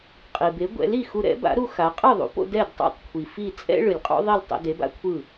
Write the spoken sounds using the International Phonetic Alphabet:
qʼi˩be˩˥ ɡʷɛ̰˩˥li˥˩ xu˧ɾɛ̰˩˥ba̰˩˥ɾu˧ xa˩˥ qʼɯ˥˩ðˤṵ˩˥po̰˧ dɛ˥˩dtˤo̰˥˩tˤkʷʰi˩ fi˥˩ t͡sʼɛ̰˥ ɭɯ˩lʲqʼo̰˥ ðˤi˥˩ltˤɛ̰˧ de˩˥ba̰˥kʷʰɯ˥˩

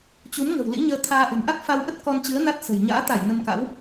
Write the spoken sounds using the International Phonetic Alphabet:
t͡ɕu˨˦m ŋə̤˨˩wlḭ˧˥ɲəː˧ t̪ʰaː˧ ʔə̤˨˩mʔa˦˥k̚ fa˧wʔə˦˥t̚ kɔ˧nt͡ɕɨ˨˦ə̯ na˦˥t̚ sə̤˨˩j ɲa̰ː˧˥t̪a˧˩j nə˧mka̰˧˥w

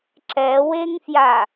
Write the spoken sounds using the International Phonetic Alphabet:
ǁɛweŋfja

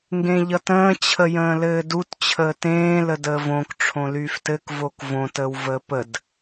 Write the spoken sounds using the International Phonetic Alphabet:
ŋɡẽʎʌtə̃ː t͡ɕʰəjə̃ːlɘːdut t͡ɕʰəːtẽː lədəːvõk ʈ͡ʂʰõlyːftɘk vokvõ təːwvəːpəd

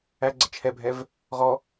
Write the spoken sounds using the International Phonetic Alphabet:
æɡ͡ǀə t͡ʃʰɛbʱɛv | ʁɔ

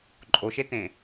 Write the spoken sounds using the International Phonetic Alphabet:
ǃʼoʃetẽ

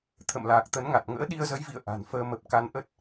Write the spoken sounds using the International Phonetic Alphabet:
t̪ʰə̰˧˨mlaː˨˩k̚t̪ə˨˦nŋa˨˩t̚ ŋə̰ː˧˥ɗi˧ə̯zə˨˦jvḭ˧˨ə̯ ʔa̤˨˩nfəː˧mə˨˩p̚ ka˧nʔə˦˥t̚

